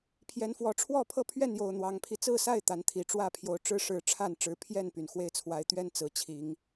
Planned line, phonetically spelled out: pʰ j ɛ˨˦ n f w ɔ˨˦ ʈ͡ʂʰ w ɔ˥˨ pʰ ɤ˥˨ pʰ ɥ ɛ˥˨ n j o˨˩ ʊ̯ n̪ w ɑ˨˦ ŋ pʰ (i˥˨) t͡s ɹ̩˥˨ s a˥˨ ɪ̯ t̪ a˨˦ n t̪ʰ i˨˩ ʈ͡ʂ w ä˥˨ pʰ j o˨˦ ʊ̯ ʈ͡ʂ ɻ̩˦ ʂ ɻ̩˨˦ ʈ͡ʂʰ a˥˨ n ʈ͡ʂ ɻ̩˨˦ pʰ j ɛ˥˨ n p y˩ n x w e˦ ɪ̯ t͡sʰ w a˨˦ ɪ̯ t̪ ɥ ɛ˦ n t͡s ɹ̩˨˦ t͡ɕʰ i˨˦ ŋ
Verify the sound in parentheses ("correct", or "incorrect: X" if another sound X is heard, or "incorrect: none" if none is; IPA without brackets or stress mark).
incorrect: i˧